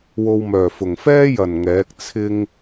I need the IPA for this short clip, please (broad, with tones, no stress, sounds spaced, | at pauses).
w o˧ w m œː˨˩ f ʊ˨˩ ŋ f ɛː˥ j ɐ˨˩ n ŋ ɛː˨˥ k̚ t͡sʰ ɪ˧ ŋ